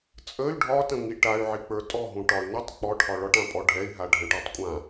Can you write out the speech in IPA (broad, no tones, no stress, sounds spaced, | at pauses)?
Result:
t͡sʼ ə y̯ ɖʱ ɒ t ə̃ ŋ i ʈ a y̯ ʕ i k͡p ə˞ tʼ ɔ ɦ ũ ʈ ɒ y̯ n ə tˤ k͡p ɔ ʈʰ ɒ ɭ ɒ ʈ ã pʼ ɔ ɖʱ ɛ i̯ ɦ a ɖʱ ə̃ ʈ ə˞ tˤ kʷʼ ã